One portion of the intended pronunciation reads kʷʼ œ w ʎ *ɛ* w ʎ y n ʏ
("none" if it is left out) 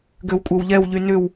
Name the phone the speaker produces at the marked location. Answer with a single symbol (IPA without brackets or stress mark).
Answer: ɛ